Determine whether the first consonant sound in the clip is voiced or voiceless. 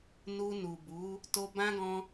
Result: voiced